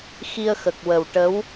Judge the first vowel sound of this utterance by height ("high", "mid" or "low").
high